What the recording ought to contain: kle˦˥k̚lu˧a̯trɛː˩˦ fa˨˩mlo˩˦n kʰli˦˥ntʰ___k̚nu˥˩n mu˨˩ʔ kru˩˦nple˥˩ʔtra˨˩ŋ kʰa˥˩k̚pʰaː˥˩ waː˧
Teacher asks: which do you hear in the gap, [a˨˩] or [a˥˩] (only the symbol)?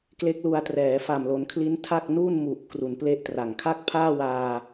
a˥˩